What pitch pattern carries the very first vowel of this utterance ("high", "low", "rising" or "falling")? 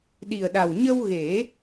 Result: low